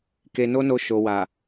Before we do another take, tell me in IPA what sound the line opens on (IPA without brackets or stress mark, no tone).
k